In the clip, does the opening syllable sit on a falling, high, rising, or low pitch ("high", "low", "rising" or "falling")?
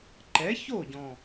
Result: rising